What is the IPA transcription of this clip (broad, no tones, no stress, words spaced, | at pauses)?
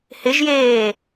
hɪʒjeː